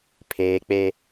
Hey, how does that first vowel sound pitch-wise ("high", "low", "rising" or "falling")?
low